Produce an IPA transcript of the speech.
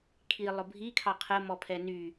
kʰi lˠʊbʱikʰɑ qʰəmɔpʰɛ ny

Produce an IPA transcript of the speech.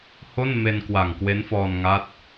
ho˥˩n me˧nkwa˨˩ŋkwe˦˥n fɔː˧nŋa˦˥t̚

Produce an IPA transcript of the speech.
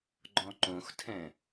ɡ͡ǃɔ̃ǃõxtʰɛ̃

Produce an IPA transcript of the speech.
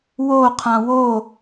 woqʰã wo

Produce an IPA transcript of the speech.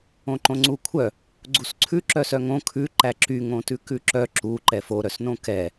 õǃõŋ͡ǀukʷʰœ | ɡ͡ǀusǀʰʉ ǁœsœŋõ kʰʉ ǃæǁy ŋõtʉkʉǁœ ǁu ǃɛfo ɾœsnõkɛ

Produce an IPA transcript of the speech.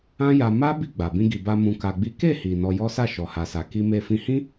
ã˦ja˧ ma˦ bi˦˨ɡ͡ba˨ bĩ˧ɡi˨ba˧ mũ˧ka˧ɡ͡bi˦ ke˦˨hi˨ nɔ˧jɔ˦sa˦˨ ʃɔ˨ha˨sa˨ ki˧me˧ fĩ˧hĩ˦

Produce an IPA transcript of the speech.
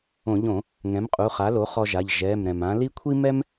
õ˧˩˧ʎõ˧˩˧ | ŋɛ̃˩˥mqʼu˩˧˩χa˩˥lo˩˥ χɔ˧ʒa˩˧˩ʎ ʒɛ˩˧˩m ɾɛ̃˩mã˩˥ li˥ kʷʰi˥mɛ˥m

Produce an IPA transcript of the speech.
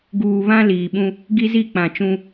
ɡuː˨βã˦ liː˨ɓũ˦ | ɡi˦zi˦˨k͡pã˨t͡ʃũ˦

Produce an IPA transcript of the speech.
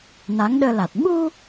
na˨˦ŋɗəː˧la˨˩t̚ ɓu˧

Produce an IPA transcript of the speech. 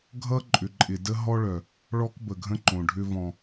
ɡʱʌ˦ǃʼʏ˨ǃʼɪ˨ də˦ɦɔ˦ɭœ˨ | ɭɔ˦kbə˨ɡʱə̃˦ ǃõ˨ɖʱʏ˦vɔ̃˨

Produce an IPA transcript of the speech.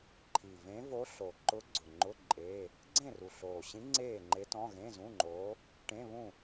ǃʰi˨˩vẽ˧˥ vo˧˥ɬo˨˩ǃʊ˧˥ ɡ͡ǀʊ˨˩ŋ͡ǃʊ˧˥˧ ǃʼe˧˥˧ | ɡ͡ǀẽ˥˨ru˨˩ɬoː˨˩ɕĩ˧˥ ŋ͡ǀeː˥˨ŋ͡ǃe˧˥tɔ̃˧˥˧ ɣẽ˧˥˧zũ˧˥˧ŋ͡ǃoː˧˥ | ʈẽ˧˥˧βũ˥˨

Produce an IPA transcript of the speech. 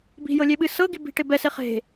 bi̤jɤlʲeɓɨ sɤɡi bi̤ʈe bɛse χe̤

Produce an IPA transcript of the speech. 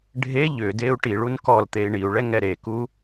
ɖʱe ʎʏdeu̯ ʈiɭun kɔlt̪ei̯ ɳiu̯ɭɛŋɛ ɾeku

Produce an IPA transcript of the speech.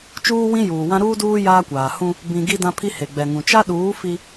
t͡ʃuː˦wĩ˦ juː˨wã˦ ɾuː˦duː˦ jaː˦kʷaː˨ hũ˦ | bĩ˨ ɡi˦dã˦pʰi˦ he˨ɡ͡bɛ˨ŋũ˨ t͡ʃa˦ɗuː˨˦ fi˦

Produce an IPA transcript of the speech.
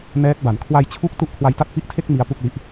nɛː˦˥k̚ba˩˦n kʰwa˧jt͡ɕʰu˦˥k̚ tu˥˩ʔkʰwa˧jta˥˩t̚ pi˦˥ʔtʰe˥˩k̚ mi˦˥a̯pu˥˩k̚li˦˥ʔ

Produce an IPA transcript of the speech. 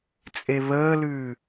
t͡sʼeβəːlʉː

